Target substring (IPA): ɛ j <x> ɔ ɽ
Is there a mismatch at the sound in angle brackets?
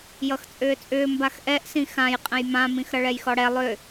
no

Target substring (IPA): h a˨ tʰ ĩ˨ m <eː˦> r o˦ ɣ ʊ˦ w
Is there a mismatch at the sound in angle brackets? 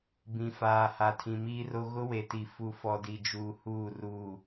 yes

